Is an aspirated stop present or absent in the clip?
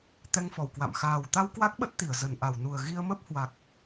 absent